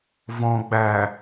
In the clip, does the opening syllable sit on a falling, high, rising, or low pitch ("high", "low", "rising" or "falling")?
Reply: low